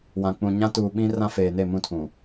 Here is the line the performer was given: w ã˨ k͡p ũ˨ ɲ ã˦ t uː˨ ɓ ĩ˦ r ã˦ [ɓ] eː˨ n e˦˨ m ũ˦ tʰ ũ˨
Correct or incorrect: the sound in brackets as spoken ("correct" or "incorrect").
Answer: incorrect